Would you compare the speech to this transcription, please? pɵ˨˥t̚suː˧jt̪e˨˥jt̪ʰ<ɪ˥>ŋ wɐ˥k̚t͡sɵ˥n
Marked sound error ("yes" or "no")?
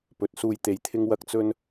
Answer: no